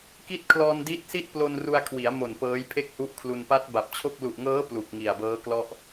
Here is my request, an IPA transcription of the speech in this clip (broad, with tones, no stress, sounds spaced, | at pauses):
k i˥˩ t̚ kʰ l ɔː˧ n d i˦˥ t̚ s i˥˩ t̚ p l o˧ n r u˧ a̯ kʰ w i˩˦ a̯ m o˨˩ n p ɤː˦˥ j pʰ e˥˩ k̚ h u˦˥ ʔ kʰ l u˧ n p a˦˥ t̚ b a˨˩ p̚ t͡ɕʰ o˥˩ k̚ l u˨˩ ʔ ŋ ɤː˦˥ p l u˨˩ k̚ ŋ i˨˩ a̯ b ɤː˦˥ k l ɔ˥˩ ʔ